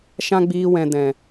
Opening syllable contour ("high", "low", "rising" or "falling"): high